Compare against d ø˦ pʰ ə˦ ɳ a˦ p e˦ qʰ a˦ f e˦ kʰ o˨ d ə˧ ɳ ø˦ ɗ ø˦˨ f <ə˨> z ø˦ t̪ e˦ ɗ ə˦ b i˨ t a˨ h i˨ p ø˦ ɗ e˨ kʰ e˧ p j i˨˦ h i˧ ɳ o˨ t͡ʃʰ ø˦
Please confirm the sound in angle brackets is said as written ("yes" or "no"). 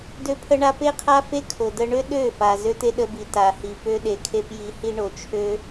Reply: no